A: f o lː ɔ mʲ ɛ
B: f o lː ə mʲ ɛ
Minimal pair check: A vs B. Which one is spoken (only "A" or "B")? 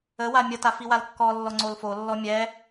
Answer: A